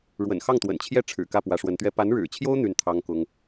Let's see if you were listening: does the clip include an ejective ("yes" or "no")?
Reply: no